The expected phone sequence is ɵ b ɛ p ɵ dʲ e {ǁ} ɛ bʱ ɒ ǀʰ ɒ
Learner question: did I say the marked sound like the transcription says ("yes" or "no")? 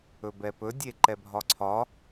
no